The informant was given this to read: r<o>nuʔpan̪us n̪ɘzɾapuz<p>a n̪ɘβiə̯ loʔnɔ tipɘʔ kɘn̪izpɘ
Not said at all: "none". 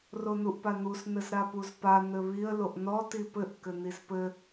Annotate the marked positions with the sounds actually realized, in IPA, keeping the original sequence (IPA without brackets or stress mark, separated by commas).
o, p